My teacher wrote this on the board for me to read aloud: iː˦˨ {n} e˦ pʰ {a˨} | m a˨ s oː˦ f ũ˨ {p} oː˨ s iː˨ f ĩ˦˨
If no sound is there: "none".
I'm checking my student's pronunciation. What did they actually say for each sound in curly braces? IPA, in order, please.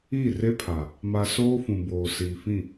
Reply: r, a˨, b

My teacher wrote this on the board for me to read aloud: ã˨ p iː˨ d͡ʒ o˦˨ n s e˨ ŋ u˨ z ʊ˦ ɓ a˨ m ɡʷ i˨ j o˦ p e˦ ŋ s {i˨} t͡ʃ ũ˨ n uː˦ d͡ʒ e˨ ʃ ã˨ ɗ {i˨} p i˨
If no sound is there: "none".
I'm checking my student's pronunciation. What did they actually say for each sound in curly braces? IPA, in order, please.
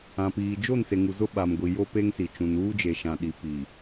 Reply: i˨, i˨

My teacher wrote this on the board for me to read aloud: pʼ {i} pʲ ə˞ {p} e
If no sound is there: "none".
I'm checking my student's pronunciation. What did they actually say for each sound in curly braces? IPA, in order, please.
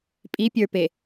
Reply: i, p

